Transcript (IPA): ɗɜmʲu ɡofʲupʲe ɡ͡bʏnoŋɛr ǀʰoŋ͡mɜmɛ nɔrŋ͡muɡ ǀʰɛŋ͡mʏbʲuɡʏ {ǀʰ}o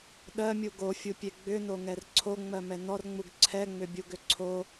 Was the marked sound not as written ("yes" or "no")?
no